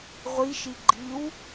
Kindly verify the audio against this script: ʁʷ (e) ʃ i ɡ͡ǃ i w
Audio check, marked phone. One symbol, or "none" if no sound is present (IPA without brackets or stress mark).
i